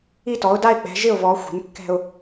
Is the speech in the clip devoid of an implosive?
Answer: yes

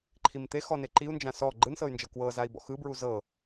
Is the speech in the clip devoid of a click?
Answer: no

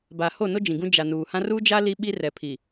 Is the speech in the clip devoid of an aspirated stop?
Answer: no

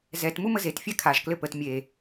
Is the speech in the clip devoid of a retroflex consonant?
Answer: yes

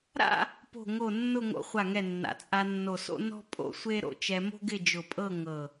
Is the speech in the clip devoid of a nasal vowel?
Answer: yes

